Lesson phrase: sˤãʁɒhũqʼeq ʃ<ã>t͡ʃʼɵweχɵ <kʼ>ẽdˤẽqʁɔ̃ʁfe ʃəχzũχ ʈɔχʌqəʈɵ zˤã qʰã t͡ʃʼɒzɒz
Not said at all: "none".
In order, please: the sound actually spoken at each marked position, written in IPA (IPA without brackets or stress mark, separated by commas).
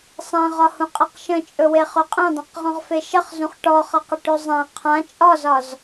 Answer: ə̃, qʼ